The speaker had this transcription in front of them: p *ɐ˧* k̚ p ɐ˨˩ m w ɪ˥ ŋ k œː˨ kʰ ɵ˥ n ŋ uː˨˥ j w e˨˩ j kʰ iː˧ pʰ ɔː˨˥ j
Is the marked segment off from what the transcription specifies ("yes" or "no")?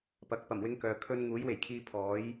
yes